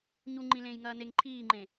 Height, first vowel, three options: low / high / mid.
high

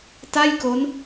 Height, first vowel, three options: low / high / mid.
low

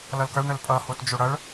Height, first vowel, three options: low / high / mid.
mid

